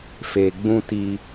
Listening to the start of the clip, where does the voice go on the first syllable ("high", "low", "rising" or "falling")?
low